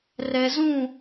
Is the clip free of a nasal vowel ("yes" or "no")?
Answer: no